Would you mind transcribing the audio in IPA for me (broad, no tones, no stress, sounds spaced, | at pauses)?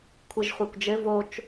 kʷʰ ɨ ʒ χʷ a kʷ d͡ʒ ɘ v o t͡ʃ